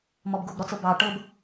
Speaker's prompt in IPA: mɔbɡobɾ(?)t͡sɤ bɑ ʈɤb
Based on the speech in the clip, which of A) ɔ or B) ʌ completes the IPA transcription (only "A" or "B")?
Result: A